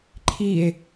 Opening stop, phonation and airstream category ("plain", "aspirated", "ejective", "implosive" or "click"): click